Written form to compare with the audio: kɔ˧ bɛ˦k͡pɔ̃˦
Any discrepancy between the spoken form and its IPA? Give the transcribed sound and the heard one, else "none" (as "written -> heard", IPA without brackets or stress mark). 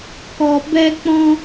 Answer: none